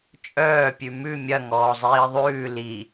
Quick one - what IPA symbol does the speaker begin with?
t͡ʃʼ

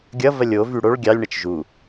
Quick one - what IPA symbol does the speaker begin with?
ɡʲ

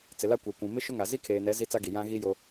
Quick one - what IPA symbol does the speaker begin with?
t͡s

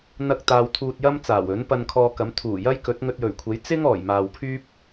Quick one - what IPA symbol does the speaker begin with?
n̪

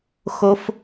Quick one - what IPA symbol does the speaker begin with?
x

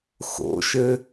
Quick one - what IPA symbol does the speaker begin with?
x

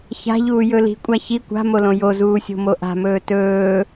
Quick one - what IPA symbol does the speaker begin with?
ç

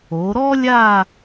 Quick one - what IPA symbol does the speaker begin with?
o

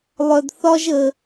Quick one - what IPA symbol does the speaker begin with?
lˠ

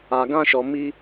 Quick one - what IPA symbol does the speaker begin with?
a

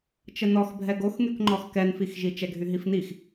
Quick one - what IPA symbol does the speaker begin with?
t͡ʃ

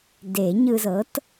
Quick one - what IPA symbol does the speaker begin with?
d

